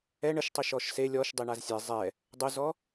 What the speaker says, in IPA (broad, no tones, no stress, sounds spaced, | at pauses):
ɛ ɳ ə ʃ tˤ i ʃ ɔ ʃ s e lʲ ɔ ʃ dˤ i ɳ a z sʲ ɛ zˤ ɛ | dˤ ʊ z ɔ